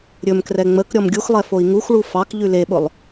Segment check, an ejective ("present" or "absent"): absent